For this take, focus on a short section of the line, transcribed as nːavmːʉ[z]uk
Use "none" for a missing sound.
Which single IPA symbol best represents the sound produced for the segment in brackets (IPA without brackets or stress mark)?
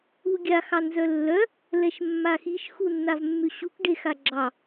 ɕ